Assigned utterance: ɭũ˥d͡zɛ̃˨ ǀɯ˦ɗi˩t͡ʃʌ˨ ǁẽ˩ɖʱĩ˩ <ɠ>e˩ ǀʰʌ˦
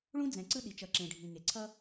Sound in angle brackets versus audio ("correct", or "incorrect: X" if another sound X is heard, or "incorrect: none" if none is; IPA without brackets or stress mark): incorrect: ŋ